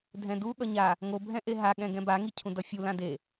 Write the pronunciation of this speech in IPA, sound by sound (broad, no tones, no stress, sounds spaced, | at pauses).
dʱ ɛ̃ d u ɠ ʌ ɲ a | ŋ o bʱ ɛ̃ ʔ e ɦ a ɠ ɛ̃ ɡ ɛ̃ b a ŋ i cʰ ũ d ʌ fʲ u l ã d e